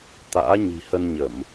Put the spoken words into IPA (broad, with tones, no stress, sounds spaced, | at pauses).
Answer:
t̪ a̰ː˧˥ ɲ i̤˨˩ h ə˧ n ɲ ə˧˩˨ m